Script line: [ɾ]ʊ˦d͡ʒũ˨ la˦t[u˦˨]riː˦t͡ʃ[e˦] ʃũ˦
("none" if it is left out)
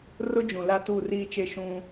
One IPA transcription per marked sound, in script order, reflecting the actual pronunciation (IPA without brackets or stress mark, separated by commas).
r, u˦˨, e˦